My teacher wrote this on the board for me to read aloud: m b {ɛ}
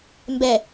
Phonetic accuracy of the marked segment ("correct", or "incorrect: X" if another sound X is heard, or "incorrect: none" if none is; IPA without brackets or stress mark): correct